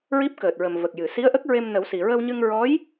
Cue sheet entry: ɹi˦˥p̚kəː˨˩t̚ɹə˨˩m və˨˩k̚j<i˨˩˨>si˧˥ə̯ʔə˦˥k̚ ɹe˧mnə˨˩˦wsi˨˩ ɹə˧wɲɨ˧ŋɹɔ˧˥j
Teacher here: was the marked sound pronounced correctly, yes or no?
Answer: no